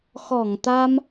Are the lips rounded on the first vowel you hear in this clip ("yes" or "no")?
yes